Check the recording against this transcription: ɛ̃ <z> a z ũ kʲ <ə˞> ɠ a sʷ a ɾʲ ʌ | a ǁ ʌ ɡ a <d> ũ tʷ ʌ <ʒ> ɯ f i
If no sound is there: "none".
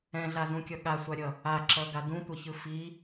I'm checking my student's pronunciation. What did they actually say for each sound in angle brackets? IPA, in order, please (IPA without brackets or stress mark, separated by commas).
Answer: ɮ, ʌ, d, ç